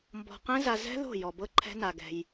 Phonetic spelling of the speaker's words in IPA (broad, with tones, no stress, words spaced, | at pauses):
mbɔ̤˧ qɛ̃˦za˧ zɛ̤˦ðo̤˦˨jɔ˨ bɤ˦ǃʰɛ̤˦na˧ɡɛ̤˧j